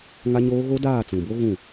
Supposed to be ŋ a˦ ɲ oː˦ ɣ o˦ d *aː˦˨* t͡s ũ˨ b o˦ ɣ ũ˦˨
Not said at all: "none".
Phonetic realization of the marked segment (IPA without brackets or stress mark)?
aː˦˨